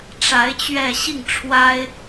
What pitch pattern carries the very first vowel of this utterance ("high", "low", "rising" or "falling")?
rising